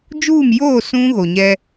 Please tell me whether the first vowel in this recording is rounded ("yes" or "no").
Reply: yes